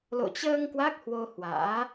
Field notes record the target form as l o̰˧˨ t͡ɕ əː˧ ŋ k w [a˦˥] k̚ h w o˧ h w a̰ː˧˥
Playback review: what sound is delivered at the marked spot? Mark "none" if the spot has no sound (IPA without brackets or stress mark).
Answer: a˦˥